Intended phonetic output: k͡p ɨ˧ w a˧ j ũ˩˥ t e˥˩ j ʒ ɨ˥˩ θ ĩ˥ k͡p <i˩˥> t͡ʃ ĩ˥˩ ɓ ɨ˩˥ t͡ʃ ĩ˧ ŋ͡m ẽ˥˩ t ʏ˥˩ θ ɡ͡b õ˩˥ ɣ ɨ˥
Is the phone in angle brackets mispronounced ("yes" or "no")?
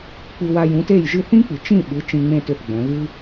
yes